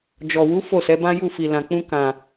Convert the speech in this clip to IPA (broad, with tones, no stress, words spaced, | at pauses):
d͡ʒɔ˨wu˨˦ fo˦˨sɛ˨˦bã˦ju˦˨ fi˨lã˨k͡pũ˧ kã˨